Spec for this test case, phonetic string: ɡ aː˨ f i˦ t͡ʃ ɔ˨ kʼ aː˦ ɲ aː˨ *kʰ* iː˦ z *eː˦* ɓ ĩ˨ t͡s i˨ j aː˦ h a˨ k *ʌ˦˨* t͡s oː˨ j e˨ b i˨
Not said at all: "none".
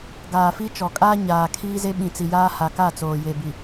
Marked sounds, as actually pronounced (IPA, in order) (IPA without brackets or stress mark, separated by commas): kʰ, e˦, a˦˨